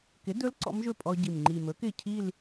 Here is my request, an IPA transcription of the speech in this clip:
k ɪ˩˥ d ɵ˧˥ l ǀ ɔ̰˧˥ m ʒ ɵ˥˩ pʼ ɔ˧ ɟ i˨˩ m ŋ͡ǃ i˨˩ m ɵ˩˥ k ɪ˥˩ cʰ i˥˧ l

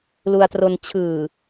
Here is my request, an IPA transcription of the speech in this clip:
l u˧ a̯ t r o˧ n t͡ɕʰ ɯː˨˩

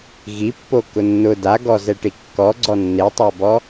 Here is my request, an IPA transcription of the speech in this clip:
ɣ i pː o k ʊ nː ʊ d a ɡ ɔ z ɛ ʈ i kː ɔ ɡ͡ǀ ɔ nː e tˤ a b ɔ

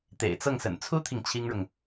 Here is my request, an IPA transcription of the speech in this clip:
t̪ ḛ˨˩ ɪ̯ t͡s ɤ˥˩ ŋ s ə̰˨˩ n t͡sʰ u˥ t̪ʰ i˨ ŋ t͡ɕʰ i˥ ŋ ɻ ʊ˨ ŋ

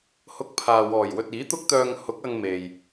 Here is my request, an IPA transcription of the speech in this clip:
h ʊ˧ k̚ pʰ aː˨ w ɔː˨˩ j w ɵ˨ t̚ iː˨˥ t̪ ʊ˥ k̚ t̪ œː˧ ŋ h ʊ˨˥ k̚ ɐ˧ ŋ m e˨ j

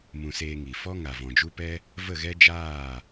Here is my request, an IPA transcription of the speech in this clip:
m ũ˨ s eː˧ ŋ i˨ f ɔ˦ ŋ a˨ v ɔ̃˨ d͡ʒ u˦ p ɛ˦ | v ə˦˨ ɣ ɛ˦ d͡ʒ aː˦˨

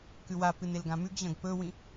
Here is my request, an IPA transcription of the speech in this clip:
k ʉ w a p ɨ n e l ɡ ã m ʉ ɡ ʑ ɐ̃ ɡ p ɵ w ĩ

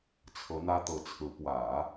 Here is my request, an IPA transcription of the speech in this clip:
t͡sʰ ɤ˧˥ n̪ ä˥ t̪ ɤ˧˥ t͡sʰ ɹ̩˧˥ p w ä˨˩˦

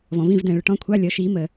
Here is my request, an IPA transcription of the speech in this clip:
v ɔ̃˨ v ĩ˦˨ v d ɛ̃ː˨ ɭ ʊ˨ ʈ ɔ̃˧˥˧ kʷʰ ɑ˧˥˧ lʲ ɔ˨˦ ʃ iː˨˦ m ə˨

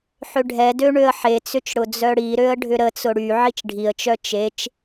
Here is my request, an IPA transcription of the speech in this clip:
ħ ʏ ɖʱ ɛ d ø ɳ ø ə̯ ħ e t͡s ʏ t͡ʃ ɽ ʊ d͡z œ ɽ i ɾ ø ə̯ ɖʱ ʏ ɾ ə t͡s ʊ ɽ y ʕ i t͡ʃ ɖʱ i ə̯ t͡ʃ œ t͡ʃ e t͡ʃ

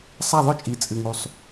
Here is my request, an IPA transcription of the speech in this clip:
sˤ a˥˧ ðˤ ɵ˥˧ t͡ʃʼ i˧˩ t͡sʼ ɨ˧ ŋ u˧ sˤ

